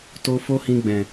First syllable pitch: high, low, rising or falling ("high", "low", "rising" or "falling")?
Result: high